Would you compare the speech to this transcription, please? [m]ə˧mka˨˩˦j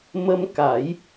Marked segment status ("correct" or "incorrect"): correct